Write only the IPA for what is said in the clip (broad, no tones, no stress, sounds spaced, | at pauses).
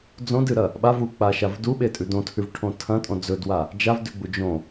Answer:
d͡z õ d ɨ ɾ ɐ | ɓ a v u k͡p a ʃ a v d u ɓ e tʼ ʉ d õ tʰ ʉ v ʈʰ õ tʰ ɐ̃ tʼ õ d͡z ɵ d w a | d͡ʒ a v d ʉ ɡ͡b u d͡ʒ õ